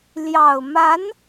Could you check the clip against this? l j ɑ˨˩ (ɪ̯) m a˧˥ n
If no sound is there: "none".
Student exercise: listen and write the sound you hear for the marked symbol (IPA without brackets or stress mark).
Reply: ʊ̯